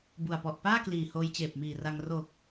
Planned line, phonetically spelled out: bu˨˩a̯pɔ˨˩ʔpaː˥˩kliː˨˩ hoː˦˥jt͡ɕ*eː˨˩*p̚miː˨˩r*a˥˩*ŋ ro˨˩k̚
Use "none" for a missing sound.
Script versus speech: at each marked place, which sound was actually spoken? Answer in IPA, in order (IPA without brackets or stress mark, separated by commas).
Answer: eː˨˩, a˧